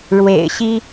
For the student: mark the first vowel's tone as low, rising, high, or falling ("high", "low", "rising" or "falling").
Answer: low